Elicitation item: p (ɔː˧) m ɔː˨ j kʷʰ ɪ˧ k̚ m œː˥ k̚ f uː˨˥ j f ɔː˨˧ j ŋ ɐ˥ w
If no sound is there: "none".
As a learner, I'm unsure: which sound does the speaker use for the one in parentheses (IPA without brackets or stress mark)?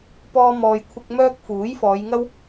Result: ɔː˧